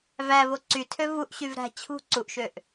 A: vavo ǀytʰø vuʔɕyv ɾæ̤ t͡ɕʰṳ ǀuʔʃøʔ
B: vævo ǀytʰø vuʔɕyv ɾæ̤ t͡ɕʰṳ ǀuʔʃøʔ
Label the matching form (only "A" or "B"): B